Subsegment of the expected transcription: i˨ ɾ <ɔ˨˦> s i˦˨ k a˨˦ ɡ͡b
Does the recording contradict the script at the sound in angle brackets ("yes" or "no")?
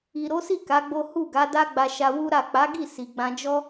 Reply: yes